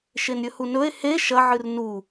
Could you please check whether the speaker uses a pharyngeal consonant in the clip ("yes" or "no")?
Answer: yes